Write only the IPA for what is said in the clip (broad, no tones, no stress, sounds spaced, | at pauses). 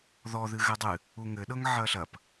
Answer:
ð ɔ ð ɨ ɣ ɘ dˤ ɨ | u ŋ ɘ ɗ ɤ ŋ ʕ ɐ ɬ ɐ p